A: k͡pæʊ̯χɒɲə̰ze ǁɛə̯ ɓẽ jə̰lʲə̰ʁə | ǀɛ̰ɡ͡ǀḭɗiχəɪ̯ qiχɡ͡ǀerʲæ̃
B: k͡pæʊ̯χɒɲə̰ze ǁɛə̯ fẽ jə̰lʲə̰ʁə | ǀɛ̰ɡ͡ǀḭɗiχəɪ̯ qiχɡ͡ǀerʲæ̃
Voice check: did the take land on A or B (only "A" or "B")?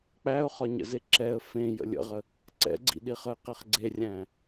B